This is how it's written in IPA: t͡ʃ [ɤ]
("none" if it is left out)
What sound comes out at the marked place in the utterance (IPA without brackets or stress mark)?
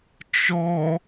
ɔ